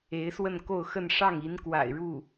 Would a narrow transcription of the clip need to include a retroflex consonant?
yes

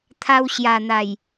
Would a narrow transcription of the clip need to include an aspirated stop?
yes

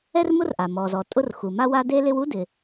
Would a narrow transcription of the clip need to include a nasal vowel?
no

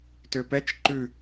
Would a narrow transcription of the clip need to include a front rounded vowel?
yes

